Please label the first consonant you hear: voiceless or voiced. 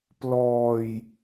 voiceless